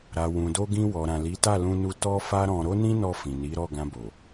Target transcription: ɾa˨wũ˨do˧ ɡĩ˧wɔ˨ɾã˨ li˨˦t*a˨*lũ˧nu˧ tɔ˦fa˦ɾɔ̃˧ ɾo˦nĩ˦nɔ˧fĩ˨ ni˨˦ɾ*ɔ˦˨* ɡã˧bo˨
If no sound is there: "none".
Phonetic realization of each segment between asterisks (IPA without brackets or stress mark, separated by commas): a˦˨, ɔ˦˨